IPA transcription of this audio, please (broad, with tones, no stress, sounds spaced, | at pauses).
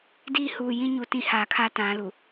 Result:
d iː˦ h uː˨ j ĩ˦ ɲ u˨ t ĩ˦ h aː˨ kʰ a˦ t ã˨˦ l u˨